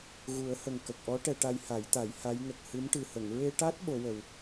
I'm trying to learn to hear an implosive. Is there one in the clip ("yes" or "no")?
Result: yes